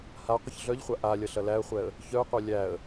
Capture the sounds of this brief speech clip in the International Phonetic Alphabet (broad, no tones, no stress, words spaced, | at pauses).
haqʷəç ɮœʎχʷa ʔa lʲɐɬɐlæə̯χʷɛə̯ | çœʊ̯qʷœ lʲæə̯